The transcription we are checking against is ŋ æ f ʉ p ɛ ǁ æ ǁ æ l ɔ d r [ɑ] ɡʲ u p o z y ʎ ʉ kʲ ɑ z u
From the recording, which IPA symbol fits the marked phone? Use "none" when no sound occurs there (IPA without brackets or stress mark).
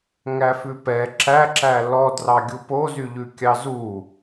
ɑ